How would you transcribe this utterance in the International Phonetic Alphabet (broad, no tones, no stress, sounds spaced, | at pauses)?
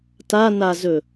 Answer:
t a n a z ɵ